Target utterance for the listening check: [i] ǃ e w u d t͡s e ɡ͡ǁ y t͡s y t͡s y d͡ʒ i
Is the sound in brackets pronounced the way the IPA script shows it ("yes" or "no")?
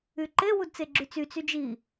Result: no